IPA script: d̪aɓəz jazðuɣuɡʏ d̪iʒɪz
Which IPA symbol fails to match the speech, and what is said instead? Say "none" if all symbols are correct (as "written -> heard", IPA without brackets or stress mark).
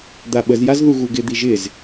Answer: ʏ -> ɪ